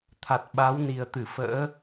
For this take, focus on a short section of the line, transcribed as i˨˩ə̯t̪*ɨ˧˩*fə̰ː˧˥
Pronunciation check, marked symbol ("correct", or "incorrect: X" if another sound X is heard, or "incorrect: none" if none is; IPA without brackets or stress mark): correct